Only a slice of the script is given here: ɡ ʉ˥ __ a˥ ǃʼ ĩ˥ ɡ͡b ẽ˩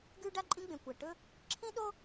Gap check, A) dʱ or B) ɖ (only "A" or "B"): B